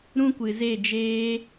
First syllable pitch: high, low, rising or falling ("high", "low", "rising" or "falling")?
high